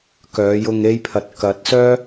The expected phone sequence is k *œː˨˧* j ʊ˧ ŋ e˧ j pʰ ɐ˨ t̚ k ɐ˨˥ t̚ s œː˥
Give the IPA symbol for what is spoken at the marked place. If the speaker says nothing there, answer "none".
œː˨˧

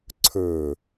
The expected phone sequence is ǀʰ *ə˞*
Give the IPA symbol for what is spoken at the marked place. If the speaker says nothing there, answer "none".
ə˞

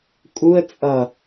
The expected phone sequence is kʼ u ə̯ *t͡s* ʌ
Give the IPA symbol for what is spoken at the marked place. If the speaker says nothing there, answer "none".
t͡sʼ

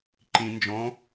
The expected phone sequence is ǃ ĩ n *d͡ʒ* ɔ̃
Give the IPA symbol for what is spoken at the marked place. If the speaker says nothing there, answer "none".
d͡ʒ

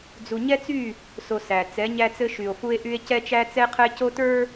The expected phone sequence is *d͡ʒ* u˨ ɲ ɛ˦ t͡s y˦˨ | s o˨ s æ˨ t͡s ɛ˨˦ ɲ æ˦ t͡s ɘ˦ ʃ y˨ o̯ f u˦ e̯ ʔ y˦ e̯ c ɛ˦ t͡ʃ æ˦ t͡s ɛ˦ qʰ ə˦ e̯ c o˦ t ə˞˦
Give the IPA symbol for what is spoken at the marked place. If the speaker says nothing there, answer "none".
d͡z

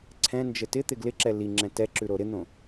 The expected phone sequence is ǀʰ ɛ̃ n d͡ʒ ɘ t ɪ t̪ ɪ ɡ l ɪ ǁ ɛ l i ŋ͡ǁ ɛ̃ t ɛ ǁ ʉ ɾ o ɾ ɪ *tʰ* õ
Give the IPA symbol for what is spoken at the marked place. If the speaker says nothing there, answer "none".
n̪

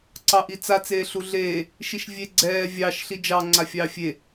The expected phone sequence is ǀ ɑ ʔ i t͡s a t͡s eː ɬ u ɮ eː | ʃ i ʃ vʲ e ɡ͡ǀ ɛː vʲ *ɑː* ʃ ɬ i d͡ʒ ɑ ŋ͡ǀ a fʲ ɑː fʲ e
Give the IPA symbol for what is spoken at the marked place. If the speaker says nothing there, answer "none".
ɑ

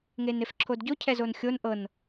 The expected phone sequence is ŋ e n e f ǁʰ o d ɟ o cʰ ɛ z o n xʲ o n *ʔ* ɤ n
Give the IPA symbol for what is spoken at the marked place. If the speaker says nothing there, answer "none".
ʔ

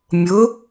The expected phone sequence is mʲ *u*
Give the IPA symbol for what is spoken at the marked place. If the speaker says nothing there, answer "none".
ʊ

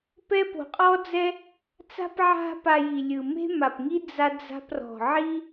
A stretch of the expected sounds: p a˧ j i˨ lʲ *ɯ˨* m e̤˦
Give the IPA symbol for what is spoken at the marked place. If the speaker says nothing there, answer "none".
ɯ˨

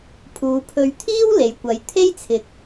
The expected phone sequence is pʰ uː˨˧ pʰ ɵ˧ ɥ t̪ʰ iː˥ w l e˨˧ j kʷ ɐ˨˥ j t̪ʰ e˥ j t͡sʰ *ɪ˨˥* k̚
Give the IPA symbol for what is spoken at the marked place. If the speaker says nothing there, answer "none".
ɪ˨˥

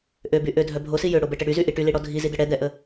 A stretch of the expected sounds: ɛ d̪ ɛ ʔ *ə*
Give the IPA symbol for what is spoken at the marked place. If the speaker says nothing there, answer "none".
ə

